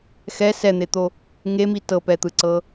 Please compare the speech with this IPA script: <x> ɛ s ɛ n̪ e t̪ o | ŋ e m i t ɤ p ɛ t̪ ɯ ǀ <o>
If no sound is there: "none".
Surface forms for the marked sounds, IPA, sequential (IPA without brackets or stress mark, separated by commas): x, ɤ